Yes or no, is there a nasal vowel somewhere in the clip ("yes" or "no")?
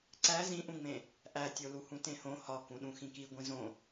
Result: yes